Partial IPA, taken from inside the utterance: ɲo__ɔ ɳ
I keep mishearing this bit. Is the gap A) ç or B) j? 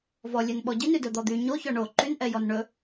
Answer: A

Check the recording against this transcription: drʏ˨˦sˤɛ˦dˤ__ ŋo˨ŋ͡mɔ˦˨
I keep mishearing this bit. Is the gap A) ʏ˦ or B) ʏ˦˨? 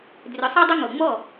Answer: A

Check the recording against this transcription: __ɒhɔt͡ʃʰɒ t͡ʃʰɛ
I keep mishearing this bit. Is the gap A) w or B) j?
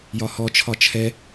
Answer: B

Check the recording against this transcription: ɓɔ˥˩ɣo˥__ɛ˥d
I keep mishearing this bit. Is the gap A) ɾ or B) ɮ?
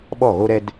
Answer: A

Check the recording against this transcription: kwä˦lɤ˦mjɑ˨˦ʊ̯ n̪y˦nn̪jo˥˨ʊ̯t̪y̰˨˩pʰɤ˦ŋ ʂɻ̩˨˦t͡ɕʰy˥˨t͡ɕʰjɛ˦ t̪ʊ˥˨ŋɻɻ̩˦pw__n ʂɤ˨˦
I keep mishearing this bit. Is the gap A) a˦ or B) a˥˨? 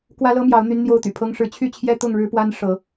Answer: A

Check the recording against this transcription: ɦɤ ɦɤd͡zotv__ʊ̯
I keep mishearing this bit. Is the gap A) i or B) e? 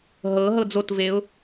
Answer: B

